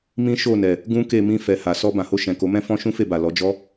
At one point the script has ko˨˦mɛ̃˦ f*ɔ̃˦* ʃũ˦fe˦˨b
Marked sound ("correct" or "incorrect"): correct